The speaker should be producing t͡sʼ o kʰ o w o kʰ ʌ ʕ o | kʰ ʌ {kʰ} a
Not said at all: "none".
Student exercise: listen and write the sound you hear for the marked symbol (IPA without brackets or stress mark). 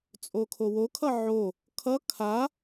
kʰ